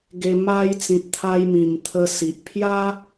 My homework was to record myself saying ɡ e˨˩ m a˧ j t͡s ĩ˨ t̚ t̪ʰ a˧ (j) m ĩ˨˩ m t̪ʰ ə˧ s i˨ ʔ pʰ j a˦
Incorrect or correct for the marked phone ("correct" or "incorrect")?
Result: correct